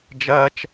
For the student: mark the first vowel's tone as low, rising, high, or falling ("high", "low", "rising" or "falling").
high